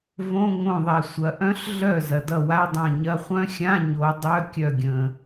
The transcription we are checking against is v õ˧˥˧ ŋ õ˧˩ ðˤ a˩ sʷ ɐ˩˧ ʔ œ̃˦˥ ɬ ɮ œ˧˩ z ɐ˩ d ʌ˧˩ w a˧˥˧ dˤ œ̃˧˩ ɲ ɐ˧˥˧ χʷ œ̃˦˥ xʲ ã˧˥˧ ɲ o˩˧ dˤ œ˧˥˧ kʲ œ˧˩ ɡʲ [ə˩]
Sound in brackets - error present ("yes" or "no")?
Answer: yes